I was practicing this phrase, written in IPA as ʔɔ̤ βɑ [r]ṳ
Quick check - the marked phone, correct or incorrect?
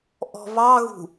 incorrect